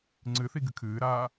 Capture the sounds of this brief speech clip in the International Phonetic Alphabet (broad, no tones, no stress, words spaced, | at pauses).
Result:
ŋ͡ǀɨθi ɡɨkʰɨːɾaː